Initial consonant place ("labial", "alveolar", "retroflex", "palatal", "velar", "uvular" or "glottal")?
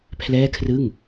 labial